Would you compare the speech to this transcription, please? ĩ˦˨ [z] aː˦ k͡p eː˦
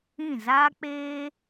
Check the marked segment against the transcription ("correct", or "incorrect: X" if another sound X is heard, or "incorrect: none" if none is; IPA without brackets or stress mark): correct